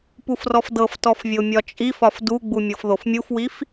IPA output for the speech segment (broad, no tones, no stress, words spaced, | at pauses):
pufrɔfdɤftɔf vʲomʲɒt͡ʃʼifɒf duɡ͡bu mʲɤfðofmʲufwif